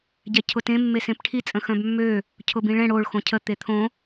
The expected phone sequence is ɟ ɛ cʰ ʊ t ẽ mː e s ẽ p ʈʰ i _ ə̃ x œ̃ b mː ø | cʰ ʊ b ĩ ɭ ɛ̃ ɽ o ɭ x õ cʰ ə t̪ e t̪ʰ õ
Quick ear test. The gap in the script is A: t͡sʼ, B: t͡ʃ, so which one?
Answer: A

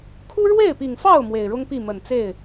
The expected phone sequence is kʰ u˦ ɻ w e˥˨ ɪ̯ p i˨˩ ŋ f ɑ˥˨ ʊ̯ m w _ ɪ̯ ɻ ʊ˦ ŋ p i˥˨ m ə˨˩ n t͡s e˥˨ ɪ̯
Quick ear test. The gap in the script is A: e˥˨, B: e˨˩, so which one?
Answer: B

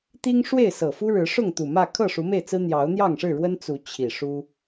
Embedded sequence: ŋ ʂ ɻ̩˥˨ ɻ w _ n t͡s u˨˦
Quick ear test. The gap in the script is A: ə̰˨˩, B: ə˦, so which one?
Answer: B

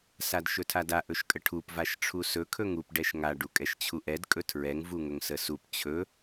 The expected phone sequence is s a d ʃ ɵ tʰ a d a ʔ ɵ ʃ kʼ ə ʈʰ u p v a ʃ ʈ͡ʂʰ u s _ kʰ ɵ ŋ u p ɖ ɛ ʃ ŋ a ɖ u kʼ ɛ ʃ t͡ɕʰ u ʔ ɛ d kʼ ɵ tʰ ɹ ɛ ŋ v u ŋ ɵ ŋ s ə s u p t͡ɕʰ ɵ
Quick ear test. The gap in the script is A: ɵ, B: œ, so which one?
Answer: A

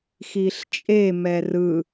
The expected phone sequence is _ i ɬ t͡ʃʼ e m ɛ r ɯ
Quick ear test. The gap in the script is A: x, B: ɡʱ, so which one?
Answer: A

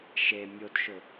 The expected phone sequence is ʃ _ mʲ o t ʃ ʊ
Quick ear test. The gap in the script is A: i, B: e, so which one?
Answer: B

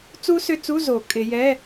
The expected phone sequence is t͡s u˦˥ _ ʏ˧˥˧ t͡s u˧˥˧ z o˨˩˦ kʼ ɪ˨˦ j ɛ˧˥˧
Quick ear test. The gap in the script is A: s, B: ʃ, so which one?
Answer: A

